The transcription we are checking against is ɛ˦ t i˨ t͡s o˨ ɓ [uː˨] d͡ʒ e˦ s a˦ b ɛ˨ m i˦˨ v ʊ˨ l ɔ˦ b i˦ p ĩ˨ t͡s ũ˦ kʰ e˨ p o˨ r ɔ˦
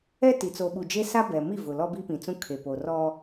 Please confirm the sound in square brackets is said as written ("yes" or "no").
no